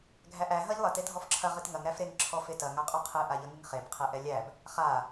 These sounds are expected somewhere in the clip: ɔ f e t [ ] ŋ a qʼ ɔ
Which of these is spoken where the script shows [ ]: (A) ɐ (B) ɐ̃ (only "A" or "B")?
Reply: A